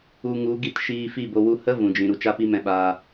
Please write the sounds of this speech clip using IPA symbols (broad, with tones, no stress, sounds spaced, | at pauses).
u˧ ŋ u˨˦ ɡ i˧ t ʃ iː˧ f i˦˨ b o˧ w u˧ h ə˦ v ũ˨ d͡ʒ ĩ˨ ɾ u˨ t͡ʃ a˦ p i˦ m ɛ̃˧ ɓ aː˧